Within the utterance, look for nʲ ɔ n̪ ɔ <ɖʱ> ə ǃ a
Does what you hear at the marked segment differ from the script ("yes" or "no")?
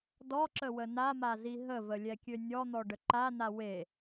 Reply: yes